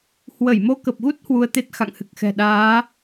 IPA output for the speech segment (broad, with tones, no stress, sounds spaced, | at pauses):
h w ə˧˩ j m o˧ k ə˨˩ p̚ ɣ u˦˥ t̚ h w u˧ ə̯ t̪ e˦˥ t̚ x a̰˧˨ ŋ h ɨ˨˩ k̚ x ɛ̤˨˩ ɗ aː˨˦